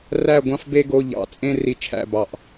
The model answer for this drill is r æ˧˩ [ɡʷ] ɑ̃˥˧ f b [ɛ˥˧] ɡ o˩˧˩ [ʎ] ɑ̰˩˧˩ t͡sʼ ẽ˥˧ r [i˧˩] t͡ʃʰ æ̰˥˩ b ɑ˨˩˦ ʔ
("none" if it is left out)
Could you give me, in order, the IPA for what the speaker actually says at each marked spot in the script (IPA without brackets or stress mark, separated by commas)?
ɡʷ, e˥˧, ʎ, i˧˩